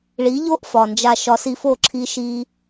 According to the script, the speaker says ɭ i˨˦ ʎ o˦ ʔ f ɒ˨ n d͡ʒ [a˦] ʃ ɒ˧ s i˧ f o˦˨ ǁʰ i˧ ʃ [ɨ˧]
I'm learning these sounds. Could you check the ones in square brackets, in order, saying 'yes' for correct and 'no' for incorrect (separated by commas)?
no, no